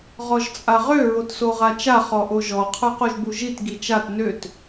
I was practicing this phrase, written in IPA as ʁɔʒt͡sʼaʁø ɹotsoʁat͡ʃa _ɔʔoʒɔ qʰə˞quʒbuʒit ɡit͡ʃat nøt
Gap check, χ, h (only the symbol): χ